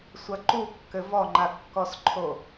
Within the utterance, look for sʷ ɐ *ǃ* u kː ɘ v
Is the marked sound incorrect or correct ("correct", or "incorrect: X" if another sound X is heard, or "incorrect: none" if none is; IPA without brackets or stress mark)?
correct